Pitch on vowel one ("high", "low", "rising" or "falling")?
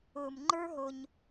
low